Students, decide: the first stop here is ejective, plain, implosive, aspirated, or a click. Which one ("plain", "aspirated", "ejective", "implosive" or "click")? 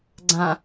click